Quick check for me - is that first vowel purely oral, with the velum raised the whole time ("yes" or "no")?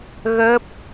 yes